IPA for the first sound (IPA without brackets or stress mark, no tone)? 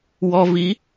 w